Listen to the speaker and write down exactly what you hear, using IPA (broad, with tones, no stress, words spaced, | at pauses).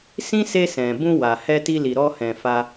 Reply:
sĩ˦se˧ sɛ̃˨ bũ˧wa˨hɛ˧ ti˧li˨ɾɔ˧hɛ̃˨ fa˧